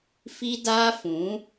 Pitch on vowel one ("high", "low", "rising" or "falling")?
high